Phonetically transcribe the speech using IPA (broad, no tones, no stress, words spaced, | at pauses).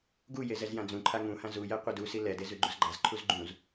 ɡuje zɛzjãd͡zũǃʰa ŋũhã zujɛ qʷɛdusi lɛdez ʉɡ͡ǃuzɡ͡ǃazǃʰuz ɡ͡ǃũz